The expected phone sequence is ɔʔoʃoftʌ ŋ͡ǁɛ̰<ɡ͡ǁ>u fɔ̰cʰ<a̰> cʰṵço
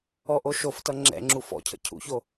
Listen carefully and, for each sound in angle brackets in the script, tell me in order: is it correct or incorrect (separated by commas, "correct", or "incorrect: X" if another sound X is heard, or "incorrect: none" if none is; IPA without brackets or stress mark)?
incorrect: ŋ͡ǁ, incorrect: ə̰